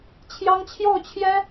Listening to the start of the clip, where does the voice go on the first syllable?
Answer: high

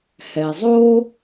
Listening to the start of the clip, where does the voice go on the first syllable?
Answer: low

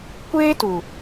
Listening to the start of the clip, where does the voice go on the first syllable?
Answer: high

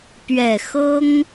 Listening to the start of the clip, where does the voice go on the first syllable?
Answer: low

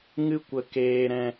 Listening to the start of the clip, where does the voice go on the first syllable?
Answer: high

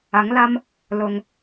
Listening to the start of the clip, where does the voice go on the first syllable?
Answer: rising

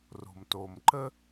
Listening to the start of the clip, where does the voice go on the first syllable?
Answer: low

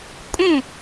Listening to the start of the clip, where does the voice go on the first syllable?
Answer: falling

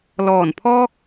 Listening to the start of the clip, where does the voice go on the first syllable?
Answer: low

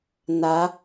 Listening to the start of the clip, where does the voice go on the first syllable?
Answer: rising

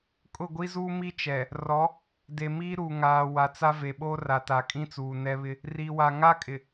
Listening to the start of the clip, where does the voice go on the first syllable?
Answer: falling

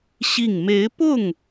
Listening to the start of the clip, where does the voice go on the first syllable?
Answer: falling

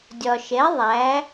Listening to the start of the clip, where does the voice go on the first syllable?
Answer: low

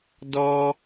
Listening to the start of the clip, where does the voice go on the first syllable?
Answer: high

